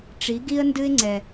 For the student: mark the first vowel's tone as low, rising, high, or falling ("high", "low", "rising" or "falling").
rising